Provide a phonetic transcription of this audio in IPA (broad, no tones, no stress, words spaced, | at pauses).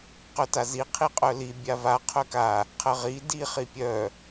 qœtazi qʰiqʼœli bʲava qʰœka | qʰəʁi di χipʲœ